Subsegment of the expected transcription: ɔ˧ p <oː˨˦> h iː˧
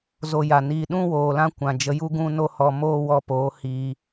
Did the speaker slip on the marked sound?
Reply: no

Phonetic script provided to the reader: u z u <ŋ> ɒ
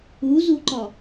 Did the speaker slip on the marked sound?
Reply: yes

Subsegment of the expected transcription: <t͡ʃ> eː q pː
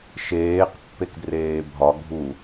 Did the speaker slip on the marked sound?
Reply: yes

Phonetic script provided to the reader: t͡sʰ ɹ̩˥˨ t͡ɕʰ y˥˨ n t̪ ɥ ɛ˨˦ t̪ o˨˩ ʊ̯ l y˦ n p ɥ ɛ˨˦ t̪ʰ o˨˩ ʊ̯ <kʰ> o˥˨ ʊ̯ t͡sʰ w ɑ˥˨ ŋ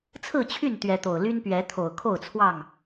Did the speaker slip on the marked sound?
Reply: no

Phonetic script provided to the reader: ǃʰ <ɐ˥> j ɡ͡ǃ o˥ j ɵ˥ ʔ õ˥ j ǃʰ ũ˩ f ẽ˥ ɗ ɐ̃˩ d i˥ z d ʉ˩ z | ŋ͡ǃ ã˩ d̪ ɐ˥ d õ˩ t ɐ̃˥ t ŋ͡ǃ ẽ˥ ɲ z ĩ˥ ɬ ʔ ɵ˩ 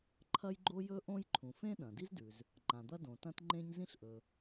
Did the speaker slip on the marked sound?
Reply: no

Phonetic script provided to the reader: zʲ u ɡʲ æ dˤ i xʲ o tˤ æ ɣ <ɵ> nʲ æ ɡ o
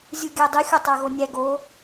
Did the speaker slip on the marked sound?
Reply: yes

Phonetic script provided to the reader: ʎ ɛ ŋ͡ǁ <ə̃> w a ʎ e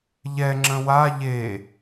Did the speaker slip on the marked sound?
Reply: no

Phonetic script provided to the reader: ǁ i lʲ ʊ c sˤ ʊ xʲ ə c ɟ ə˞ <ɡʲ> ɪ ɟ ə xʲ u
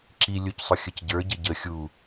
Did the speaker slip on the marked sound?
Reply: yes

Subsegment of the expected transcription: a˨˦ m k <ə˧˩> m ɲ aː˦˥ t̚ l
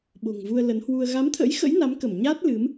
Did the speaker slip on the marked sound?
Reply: no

